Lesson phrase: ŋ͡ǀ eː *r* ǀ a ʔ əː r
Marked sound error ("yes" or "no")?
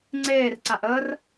no